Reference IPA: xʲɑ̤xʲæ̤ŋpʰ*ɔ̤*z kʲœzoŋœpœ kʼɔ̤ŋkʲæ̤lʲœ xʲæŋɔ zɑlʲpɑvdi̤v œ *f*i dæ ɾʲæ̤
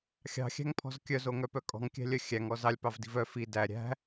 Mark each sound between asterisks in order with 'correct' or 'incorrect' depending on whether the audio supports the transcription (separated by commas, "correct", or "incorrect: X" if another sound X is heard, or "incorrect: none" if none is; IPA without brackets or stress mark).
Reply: correct, correct